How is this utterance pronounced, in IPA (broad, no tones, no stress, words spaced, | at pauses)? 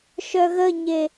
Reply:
ʃœɣəɲe